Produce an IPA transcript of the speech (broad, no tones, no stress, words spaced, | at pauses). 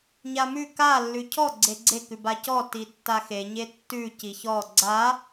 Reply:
ɲamʉ ka lːʉcʰɔ ɡ͡ǀeɡ͡ǀekʉ bacɔ titːaxeɲe tːʉ ciçɔ ɡ͡ǀa